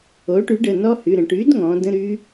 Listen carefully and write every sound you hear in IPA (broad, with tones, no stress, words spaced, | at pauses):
o˩˥ʈy˩˥ɖə˩˧˩ nɔ˦˥hy˩˧˩ɾə̃˩˧ ʈy˩˥dŋɔ̃˩˧ də̃˧˥˧ɾy˦˥